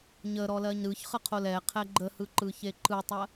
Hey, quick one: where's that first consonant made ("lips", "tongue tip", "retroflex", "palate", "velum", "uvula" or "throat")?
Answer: palate